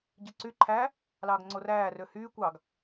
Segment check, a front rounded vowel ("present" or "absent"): present